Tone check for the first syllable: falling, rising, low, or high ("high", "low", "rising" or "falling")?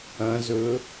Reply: rising